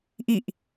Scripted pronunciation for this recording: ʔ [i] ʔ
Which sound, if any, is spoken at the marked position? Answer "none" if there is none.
i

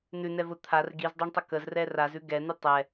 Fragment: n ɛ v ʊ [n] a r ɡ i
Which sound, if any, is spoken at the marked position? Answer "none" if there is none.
t̪ʰ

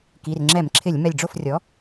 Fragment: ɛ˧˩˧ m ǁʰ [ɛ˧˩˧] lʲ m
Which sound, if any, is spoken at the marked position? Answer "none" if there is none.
ɪ˧˩˧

